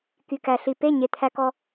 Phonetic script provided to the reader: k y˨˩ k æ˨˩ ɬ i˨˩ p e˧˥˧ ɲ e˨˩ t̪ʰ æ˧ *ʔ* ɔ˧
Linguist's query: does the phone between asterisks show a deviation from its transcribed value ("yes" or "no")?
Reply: yes